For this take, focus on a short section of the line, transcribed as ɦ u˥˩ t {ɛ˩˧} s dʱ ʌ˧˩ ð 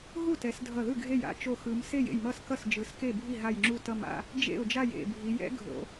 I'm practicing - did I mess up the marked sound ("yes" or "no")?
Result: no